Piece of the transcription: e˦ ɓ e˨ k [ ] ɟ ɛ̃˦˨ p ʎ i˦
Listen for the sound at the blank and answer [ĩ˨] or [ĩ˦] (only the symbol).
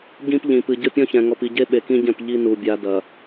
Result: ĩ˦